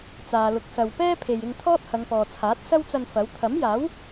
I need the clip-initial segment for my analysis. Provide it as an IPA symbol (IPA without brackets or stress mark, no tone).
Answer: t͡s